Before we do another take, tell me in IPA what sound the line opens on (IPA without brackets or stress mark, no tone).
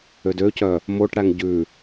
ø